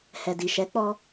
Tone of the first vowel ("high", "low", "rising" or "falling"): low